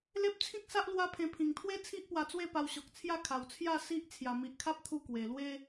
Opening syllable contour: high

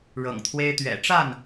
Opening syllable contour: low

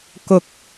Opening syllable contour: low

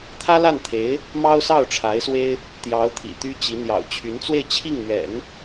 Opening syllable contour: high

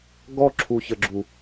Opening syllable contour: high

